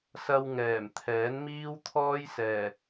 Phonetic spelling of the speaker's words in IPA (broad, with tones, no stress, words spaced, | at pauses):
sɐ˧wŋɛː˨˩m t̪ʰɛː˨˥nmiː˥wt̪ʰɔː˥jsɛː˨˩